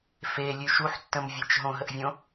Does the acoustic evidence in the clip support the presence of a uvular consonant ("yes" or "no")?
no